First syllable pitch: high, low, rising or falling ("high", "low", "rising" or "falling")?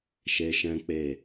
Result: high